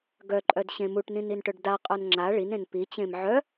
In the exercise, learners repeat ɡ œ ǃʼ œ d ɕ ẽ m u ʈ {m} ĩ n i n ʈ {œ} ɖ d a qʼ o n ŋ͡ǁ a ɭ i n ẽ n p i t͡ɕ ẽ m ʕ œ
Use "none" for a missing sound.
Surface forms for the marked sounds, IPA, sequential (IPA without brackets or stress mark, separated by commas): n, œ